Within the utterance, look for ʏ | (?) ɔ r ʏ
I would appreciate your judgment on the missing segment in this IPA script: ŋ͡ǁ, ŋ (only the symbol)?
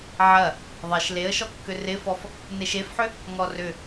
ŋ